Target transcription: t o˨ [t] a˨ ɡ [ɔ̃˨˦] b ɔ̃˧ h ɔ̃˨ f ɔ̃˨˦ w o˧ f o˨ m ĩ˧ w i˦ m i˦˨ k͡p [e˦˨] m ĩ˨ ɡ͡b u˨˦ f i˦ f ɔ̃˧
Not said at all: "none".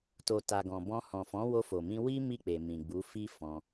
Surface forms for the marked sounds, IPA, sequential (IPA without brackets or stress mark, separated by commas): t, ɔ̃˨, e˨